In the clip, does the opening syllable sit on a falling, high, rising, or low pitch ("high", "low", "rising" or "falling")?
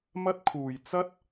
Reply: high